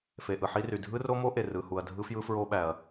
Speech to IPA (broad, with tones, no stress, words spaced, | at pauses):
fe˩ ʔɯ˩ ħi˦˥ry˩ dʱɯ˦˥ro˦˥mo˦˥ ʔe˩rɯ˩ hu˩ɐ̯ dʱɯ˦˥fjɯ˦˥fɹo˦˥ɓæ˩ɐ̯